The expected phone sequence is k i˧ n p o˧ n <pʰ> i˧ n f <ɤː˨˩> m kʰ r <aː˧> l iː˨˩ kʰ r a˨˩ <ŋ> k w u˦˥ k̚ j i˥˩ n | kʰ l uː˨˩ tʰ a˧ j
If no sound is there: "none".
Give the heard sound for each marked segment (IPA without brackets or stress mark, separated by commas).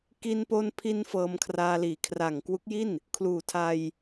pʰ, ɤː˧, aː˧, ŋ